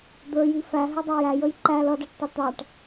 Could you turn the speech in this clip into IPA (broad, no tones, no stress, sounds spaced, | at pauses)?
d̪ ə˞ j i f æ ɦ ɪ dˤ ɑ j æ j ə j ǃ æ l ʌ d æ ʈ tˤ ʌ t̪ ɑ ʈ